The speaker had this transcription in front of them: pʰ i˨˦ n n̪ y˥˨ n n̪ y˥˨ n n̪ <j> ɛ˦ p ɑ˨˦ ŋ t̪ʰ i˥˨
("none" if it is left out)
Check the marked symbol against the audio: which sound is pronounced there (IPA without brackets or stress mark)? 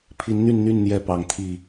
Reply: j